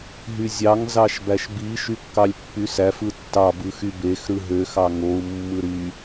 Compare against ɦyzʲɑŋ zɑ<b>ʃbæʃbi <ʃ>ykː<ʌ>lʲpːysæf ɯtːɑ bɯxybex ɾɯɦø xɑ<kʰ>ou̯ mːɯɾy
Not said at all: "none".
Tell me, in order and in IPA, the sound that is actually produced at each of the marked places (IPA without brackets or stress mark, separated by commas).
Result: none, ʃ, ɑ, ŋ